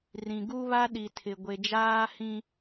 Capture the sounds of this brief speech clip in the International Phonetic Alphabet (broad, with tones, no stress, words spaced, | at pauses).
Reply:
rĩ˨ɡu˦βa˦ ɗi˨tʰɪ˨ ɡʷe˨d͡ʒaː˦hĩ˦